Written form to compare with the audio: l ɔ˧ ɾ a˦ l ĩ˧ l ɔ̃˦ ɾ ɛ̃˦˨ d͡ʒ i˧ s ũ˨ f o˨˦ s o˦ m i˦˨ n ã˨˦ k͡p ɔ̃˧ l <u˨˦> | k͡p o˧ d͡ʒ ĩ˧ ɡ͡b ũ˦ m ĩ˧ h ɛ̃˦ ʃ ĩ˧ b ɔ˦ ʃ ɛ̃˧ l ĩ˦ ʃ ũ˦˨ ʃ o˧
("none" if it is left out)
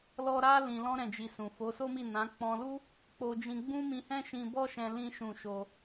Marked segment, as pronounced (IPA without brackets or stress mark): u˦